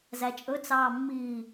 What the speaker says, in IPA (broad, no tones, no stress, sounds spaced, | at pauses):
z æ t͡ʃʼ ɵ t͡s ɑː mː iː